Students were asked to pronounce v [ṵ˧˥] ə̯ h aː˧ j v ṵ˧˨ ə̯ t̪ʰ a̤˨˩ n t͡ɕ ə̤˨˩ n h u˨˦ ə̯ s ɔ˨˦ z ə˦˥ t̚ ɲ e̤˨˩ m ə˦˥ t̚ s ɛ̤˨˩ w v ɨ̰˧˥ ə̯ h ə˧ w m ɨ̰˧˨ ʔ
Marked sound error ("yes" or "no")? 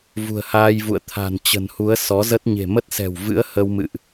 yes